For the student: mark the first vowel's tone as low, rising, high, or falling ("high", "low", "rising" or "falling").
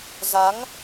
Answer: rising